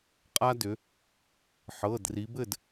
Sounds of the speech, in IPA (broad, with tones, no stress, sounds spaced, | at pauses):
qʼ a˦ d ʏ˩˧ | ħ ɤ˩˧˩ d r i˩˧ b ɘ˥˩ d